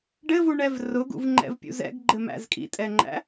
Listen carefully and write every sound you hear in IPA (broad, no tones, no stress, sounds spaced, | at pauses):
ɖ ɘ v u ɳ ɛ v r ʊ ɡ ṵ v ŋ͡ǃ ɛ̰ v pʲ ṵ z ɛ̰ ɡ ɡ͡ǃ ɘ m æ̰ z kʼ ḭ tʼ ɛ ŋ͡ǃ æ̰